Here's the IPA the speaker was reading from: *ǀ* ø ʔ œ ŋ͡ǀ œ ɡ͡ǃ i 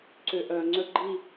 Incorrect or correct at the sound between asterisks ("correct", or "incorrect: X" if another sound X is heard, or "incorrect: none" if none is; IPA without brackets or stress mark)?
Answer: correct